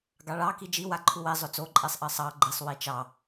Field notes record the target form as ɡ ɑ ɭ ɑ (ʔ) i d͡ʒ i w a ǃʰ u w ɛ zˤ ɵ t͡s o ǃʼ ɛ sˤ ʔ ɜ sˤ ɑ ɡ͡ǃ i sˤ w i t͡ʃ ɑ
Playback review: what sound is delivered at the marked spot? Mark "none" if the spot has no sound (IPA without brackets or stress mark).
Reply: k